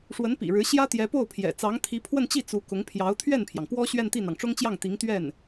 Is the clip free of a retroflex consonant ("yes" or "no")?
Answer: no